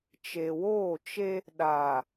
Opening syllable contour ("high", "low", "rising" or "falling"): low